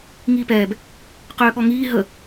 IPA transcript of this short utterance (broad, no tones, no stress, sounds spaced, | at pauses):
ŋ iː p ɛː b | q øː ɠ ɔ ŋ iː ɦ ə